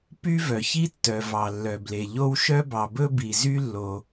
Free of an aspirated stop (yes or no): yes